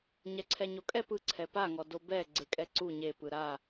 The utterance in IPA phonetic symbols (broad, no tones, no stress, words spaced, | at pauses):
ɲɛǀʰɛɲokʼɛ pɯ ǀʰɛpaŋɔ dobɛ ɡ͡ǀekʼɛǀu ɲepɯ ɾa